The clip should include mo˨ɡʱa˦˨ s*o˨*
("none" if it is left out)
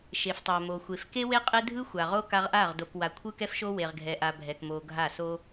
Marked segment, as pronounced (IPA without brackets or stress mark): o˦